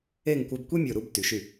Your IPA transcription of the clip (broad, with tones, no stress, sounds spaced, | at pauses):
e˥˧ ŋ kʷ œ˧ b kʷ i˥ mʲ o˧˩ ɾ u˥˧ b t y˩˧ ʃ y˧˩